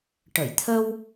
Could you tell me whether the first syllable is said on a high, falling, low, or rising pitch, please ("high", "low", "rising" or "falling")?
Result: low